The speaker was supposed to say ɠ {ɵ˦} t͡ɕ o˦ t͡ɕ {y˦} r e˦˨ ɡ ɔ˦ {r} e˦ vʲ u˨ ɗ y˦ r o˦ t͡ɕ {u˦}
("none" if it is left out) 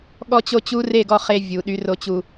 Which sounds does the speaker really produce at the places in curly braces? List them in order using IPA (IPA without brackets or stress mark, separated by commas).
ɔ˦, u˦, χ, u˦